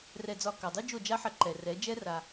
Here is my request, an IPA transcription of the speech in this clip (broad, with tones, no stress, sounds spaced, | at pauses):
r ɛ˧ d͡z ɒ˧ k a˨ dˤ u˦ d͡ʒ o˦˨ d͡ʒ a˦ ħ ɐ˧ ǃ ɛ˨ r ɛ˨˦ d͡ʒ ɛ˦ r a˧